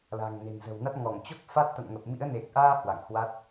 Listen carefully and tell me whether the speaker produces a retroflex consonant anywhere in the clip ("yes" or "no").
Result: no